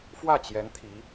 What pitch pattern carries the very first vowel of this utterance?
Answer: falling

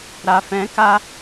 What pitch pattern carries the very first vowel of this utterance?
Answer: low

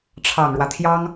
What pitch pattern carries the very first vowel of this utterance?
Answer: low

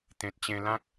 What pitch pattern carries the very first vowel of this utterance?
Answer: low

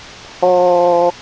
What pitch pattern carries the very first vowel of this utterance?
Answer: low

